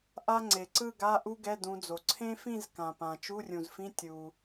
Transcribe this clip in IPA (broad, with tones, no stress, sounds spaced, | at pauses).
ʔ a˥ ŋ͡ǀ e˩ ǀ ɯ˥˧ ɡ a˧˥˧ ʔ u˥ ɡ ɛ˧˥˧ d ũ˨˦ d͡z o˩ ǀʰ ẽ˥ f ĩ˥˧ z k ã˩ p ã˩ t͡ʃ u˧˥˧ rʲ ũ˩ z f ĩ˧˥˧ tʲ u˩